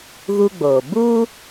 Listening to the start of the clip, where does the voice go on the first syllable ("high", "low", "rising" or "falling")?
high